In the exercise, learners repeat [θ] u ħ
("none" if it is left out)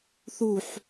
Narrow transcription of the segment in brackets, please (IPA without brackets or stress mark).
θ